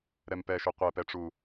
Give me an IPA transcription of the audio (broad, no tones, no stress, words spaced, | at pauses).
ɾɛmpɛʃʏ qʷɛpɛʈ͡ʂu